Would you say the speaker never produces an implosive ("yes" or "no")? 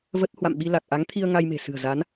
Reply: no